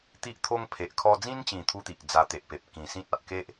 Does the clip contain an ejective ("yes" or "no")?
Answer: no